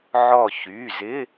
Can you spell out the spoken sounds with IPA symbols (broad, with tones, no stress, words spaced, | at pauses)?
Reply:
ʕɔ˧˩çy˩˧˩zɪ˧˥˧